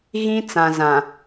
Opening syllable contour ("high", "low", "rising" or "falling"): high